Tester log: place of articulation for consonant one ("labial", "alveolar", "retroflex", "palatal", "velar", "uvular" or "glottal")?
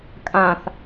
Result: velar